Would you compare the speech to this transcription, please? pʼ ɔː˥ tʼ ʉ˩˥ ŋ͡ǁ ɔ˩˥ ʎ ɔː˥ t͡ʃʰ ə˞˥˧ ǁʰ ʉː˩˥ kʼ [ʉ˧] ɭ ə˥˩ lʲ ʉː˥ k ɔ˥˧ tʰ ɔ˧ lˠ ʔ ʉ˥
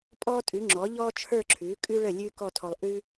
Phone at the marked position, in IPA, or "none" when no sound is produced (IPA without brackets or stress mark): ʉ˥